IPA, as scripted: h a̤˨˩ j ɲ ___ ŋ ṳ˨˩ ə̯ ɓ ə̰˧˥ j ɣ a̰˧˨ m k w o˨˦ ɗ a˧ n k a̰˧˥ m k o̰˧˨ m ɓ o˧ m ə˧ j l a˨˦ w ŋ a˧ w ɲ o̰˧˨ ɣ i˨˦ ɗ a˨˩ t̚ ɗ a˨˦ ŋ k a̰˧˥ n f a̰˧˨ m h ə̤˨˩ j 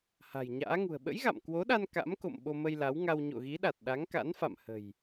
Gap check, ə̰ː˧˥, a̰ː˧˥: a̰ː˧˥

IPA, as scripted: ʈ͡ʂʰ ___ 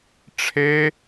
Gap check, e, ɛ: e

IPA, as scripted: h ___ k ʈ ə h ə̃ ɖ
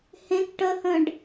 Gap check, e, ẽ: ẽ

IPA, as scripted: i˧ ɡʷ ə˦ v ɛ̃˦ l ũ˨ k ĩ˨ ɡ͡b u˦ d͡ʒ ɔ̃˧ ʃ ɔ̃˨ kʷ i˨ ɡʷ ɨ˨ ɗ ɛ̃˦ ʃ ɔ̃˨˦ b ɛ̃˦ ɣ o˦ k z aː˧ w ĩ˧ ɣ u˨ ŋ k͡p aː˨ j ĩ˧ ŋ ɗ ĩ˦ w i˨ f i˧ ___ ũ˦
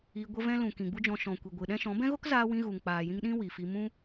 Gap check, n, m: m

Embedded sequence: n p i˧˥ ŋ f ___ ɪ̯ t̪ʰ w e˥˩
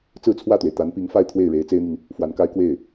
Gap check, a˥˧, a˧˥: a˥˧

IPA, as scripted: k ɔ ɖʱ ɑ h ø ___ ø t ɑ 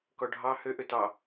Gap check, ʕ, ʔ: ʔ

